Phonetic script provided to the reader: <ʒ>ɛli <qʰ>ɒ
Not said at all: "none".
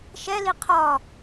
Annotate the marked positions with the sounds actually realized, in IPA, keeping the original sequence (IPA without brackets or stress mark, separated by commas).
ʃ, qʰ